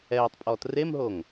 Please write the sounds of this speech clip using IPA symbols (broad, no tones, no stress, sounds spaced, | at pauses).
ɛː tˤ pʼ ɔː t r e m ɦ o ŋ